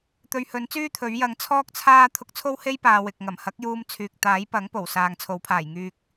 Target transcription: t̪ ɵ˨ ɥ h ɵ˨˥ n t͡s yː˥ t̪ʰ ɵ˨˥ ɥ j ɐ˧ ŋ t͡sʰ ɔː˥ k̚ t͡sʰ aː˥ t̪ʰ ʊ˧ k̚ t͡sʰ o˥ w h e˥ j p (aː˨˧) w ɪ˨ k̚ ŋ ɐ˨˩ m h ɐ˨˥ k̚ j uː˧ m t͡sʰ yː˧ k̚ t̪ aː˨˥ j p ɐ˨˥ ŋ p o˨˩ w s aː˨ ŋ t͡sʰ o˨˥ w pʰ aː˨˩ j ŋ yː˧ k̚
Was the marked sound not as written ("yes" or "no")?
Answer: yes